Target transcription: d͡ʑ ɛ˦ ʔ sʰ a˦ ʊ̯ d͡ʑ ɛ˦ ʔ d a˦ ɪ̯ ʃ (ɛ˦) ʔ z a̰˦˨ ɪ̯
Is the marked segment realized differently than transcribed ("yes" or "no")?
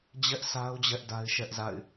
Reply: no